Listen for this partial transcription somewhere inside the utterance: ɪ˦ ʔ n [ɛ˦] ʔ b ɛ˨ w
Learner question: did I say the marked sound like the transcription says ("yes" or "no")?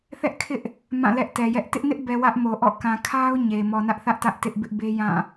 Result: no